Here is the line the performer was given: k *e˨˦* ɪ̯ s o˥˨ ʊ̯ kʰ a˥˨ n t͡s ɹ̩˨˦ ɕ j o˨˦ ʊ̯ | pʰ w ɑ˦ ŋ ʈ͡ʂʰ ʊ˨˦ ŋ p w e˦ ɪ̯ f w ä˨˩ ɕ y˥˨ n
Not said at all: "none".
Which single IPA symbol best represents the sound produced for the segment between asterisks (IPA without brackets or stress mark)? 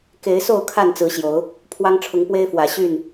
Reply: e˨˦